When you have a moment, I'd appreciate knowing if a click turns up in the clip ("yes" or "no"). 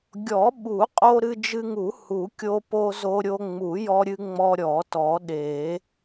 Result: no